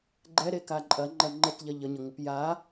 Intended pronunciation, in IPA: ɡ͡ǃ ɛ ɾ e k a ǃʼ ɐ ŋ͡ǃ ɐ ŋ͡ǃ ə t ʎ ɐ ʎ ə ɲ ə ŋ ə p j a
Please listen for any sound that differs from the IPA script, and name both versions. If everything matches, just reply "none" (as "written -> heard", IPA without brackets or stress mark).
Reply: none